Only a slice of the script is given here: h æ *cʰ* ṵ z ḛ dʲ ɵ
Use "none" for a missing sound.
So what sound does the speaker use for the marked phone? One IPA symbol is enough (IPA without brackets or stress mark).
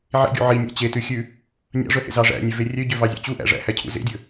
cʰ